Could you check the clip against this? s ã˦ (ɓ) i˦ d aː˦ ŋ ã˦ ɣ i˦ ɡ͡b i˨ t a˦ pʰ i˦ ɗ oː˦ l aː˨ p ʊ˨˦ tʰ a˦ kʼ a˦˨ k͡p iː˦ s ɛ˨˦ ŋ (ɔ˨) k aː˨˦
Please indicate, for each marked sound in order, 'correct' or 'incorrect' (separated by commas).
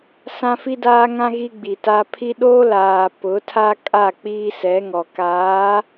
incorrect, correct